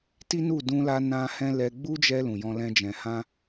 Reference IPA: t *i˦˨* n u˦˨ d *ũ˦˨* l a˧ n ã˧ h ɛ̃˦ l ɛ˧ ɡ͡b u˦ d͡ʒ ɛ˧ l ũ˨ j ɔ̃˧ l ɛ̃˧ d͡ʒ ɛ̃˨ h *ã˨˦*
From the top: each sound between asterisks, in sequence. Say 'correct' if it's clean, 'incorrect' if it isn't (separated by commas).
incorrect, incorrect, incorrect